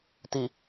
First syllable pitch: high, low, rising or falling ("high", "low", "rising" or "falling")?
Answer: low